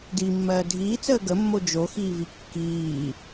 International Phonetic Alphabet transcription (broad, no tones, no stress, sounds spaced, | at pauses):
d i mː ɜː dʱ iː t͡s əː ɡ ə mː o d͡ʒ o x iː v i kː iː